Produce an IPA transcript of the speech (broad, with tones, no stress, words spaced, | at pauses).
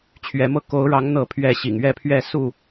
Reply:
t͡ɕʰɥɛ˨˦mɤ˥˨ ko˨˦ʊ̯ɻɑ˨˦ŋ n̪ɤ˥˨pʰɥɛ˥˨ ɕḭ˨˩ŋɥɛ˥˨pʰɥɛ˥˨ su˥˨